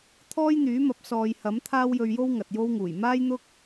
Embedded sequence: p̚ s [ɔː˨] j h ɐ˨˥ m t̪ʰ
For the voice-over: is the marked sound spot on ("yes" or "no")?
yes